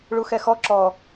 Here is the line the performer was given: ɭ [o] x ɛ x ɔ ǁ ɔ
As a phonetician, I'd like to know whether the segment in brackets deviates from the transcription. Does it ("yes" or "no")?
yes